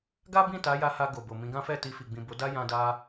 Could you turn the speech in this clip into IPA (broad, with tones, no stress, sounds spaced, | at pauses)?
ɡ a˦ b ĩ˦˨ t a˨˦ j a˧ h a˧ ɡ o˨ b o˨ m ĩ˨˦ ɡ ã˦ f ɛ˦˨ t i˧ f i˨ ɡ͡b ĩ˨ b o˨˦ d a˦ j ã˦ d a˦